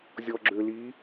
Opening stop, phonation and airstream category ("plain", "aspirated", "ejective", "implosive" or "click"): click